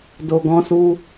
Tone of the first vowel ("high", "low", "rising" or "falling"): low